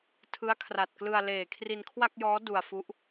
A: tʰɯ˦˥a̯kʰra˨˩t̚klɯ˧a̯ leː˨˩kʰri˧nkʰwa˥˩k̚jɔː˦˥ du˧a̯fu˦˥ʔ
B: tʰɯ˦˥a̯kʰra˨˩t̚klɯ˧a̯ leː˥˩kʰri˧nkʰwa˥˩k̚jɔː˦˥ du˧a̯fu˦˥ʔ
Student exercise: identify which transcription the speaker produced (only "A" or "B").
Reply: A